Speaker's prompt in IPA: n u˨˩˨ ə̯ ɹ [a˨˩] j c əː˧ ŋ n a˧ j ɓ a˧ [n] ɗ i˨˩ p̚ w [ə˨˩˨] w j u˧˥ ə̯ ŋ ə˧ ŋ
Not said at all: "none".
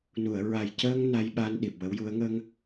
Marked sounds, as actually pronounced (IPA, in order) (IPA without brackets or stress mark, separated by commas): a˨˩, n, ə˧˥